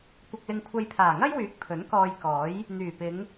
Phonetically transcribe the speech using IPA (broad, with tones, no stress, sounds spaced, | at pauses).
kʷ ɐ˧ k̚ l ɪ˧ ŋ kʷʰ ɐ˧ j pʰ aː˨˩ ŋ ɐ˥ j w yː˨˥ k̚ pʰ ɵ˨˥ n k ɔː˧ j k ɔː˨˥ j | n̪ yː˨˩ p ɪ˨˧ ŋ